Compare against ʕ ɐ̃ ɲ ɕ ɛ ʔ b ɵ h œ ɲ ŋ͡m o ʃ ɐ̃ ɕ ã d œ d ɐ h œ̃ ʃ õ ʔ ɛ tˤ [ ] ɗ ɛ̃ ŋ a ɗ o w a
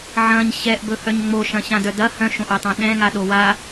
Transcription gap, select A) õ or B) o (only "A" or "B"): A